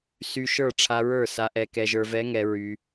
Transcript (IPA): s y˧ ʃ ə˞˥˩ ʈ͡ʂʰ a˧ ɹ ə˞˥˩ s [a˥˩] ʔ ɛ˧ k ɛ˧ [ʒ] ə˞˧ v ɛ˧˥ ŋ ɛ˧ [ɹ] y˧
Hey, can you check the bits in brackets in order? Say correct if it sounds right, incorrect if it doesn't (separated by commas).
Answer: incorrect, correct, correct